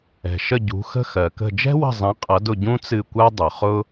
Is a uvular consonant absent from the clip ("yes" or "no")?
no